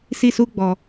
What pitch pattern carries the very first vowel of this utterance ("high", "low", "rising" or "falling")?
falling